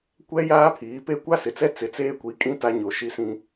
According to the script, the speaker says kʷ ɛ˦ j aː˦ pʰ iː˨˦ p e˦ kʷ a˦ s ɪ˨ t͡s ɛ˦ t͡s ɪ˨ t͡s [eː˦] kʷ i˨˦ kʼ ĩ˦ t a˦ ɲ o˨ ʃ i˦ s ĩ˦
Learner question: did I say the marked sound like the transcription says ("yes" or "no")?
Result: yes